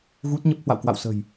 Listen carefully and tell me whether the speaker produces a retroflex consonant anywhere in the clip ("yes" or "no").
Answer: no